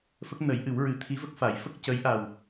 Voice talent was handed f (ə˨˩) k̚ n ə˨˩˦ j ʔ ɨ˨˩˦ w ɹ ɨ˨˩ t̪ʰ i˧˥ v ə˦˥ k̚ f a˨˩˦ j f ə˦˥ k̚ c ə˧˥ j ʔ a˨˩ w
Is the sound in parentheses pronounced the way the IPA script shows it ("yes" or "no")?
no